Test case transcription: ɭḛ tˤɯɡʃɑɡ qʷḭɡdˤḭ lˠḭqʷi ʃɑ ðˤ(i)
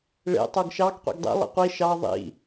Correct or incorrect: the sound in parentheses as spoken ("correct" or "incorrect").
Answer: incorrect